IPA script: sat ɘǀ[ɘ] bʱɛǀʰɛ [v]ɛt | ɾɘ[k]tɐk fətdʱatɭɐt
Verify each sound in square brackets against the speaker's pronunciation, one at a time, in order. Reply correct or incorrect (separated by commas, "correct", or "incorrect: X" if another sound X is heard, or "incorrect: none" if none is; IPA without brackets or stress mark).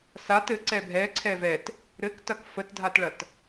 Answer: incorrect: ɛ, correct, correct